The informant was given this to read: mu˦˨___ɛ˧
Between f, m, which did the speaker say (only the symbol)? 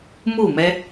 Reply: m